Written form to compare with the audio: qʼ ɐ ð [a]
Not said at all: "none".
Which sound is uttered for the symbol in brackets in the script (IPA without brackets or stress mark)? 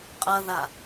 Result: a